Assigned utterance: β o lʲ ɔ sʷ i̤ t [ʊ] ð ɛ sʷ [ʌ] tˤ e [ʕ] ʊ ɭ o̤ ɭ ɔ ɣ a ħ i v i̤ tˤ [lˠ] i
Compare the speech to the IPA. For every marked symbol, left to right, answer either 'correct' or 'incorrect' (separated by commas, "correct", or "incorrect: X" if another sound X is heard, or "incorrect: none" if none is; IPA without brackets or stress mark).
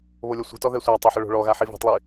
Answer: incorrect: ɔ, incorrect: a, incorrect: ħ, correct